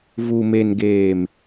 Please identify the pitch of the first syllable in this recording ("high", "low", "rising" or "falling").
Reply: low